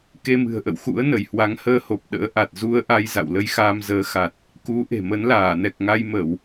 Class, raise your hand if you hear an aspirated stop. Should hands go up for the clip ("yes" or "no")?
no